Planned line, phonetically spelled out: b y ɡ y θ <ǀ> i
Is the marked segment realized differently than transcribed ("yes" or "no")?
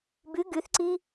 no